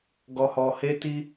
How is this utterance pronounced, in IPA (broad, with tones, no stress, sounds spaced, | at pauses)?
ɡ ɔ˧ h ɔ˧ h e˦ t i˦